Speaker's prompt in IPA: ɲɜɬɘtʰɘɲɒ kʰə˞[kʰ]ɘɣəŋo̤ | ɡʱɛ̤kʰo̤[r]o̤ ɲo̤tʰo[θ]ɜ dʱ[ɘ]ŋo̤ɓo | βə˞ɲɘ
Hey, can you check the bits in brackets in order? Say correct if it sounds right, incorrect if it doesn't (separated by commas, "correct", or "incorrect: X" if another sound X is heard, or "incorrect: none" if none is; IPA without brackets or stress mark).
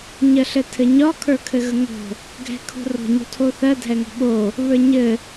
correct, correct, correct, incorrect: ɛ